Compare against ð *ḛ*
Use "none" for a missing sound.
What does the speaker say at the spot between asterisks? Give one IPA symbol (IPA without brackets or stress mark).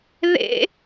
ḛ